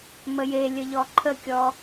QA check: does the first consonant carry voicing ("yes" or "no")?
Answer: yes